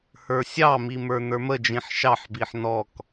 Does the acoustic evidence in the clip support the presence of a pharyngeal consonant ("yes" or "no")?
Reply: yes